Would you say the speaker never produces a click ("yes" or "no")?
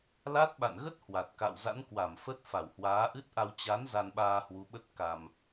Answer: yes